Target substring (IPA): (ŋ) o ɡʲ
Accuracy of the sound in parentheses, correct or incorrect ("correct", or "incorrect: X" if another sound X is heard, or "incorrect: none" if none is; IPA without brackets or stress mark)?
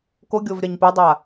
incorrect: k